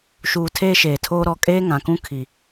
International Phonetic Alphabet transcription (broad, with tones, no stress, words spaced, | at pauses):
ʃuː˨ tʰeː˦ʃeː˨tʰoː˦ ɾɔ˨kʼeː˦ ŋã˨kũ˦ kʰi˨